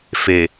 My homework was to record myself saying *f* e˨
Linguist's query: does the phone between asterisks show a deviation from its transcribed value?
no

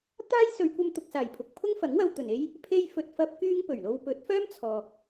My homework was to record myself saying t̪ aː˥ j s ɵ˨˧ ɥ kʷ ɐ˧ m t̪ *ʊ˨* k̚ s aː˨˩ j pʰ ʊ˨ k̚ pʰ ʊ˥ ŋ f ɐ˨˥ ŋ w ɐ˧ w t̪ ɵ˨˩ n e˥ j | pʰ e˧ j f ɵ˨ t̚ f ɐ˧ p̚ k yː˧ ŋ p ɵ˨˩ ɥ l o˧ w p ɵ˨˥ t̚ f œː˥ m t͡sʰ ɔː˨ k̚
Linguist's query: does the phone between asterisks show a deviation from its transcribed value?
no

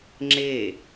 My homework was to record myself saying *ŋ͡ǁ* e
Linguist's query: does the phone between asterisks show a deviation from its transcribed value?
no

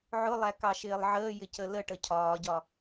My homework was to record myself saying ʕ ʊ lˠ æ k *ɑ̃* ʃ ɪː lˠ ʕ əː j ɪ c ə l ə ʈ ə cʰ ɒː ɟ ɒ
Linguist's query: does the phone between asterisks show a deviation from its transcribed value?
yes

